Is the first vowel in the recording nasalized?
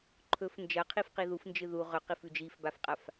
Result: no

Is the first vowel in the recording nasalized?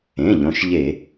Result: yes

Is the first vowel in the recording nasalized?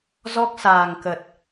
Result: no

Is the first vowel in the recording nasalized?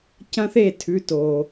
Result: yes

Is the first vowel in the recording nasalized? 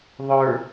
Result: no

